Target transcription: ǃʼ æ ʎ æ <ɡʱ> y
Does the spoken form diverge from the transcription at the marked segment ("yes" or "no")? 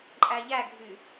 no